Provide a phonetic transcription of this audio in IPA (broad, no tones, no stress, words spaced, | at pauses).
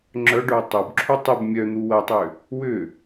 ŋ͡ǁœɖœː tˤobǁʰu tˤɪb mʲœn̪u wɐtˤʏː | wʏː